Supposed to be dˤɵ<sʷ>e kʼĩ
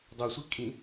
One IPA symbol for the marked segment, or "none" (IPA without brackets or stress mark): sʷ